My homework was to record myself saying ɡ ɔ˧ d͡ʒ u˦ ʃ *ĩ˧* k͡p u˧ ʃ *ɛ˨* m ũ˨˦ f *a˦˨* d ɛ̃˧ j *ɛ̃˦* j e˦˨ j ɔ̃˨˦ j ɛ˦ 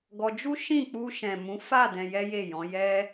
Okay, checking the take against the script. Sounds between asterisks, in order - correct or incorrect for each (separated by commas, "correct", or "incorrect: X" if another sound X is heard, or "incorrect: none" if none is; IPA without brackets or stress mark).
incorrect: ĩ˦˨, incorrect: ɛ̃˨, correct, incorrect: ɛ˦